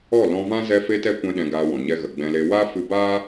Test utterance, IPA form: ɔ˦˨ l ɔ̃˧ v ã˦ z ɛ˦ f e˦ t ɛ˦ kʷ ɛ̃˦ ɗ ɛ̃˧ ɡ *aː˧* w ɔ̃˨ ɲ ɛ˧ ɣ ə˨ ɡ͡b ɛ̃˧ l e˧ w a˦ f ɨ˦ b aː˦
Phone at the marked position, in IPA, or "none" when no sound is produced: aː˧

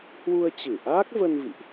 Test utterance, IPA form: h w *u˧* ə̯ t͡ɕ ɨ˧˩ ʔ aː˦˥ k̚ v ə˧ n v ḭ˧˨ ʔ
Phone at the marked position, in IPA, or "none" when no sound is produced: u˧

